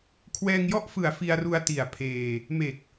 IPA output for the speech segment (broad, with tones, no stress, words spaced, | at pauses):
kʰwɛː˧ŋjɔ˥˩ʔfɯ˨˩a̯ fi˧a̯ru˧a̯ ti˨˩a̯pʰeː˧ | me˨˩k̚